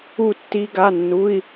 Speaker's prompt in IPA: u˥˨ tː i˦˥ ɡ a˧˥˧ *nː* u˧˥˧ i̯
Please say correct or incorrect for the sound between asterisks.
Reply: correct